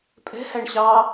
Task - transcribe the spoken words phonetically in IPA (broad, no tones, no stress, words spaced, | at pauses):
pʼɛ̤hæɳ ɕɑ